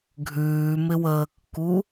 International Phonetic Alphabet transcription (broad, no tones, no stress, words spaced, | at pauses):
ɡʱʉːmɪwəːkːu